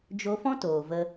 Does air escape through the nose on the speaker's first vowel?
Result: no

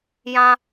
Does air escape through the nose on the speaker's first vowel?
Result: yes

